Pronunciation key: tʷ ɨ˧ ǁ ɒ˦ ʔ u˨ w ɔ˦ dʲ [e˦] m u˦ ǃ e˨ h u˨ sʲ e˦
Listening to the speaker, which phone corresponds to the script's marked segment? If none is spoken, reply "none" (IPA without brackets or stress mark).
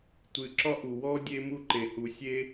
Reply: e˦